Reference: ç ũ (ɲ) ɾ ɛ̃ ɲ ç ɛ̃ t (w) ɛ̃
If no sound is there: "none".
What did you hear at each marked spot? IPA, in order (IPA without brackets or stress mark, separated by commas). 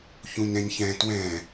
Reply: ɲ, w